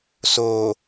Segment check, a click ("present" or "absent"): absent